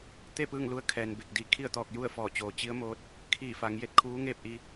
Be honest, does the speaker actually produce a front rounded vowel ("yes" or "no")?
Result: no